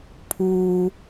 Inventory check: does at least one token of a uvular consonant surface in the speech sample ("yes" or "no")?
no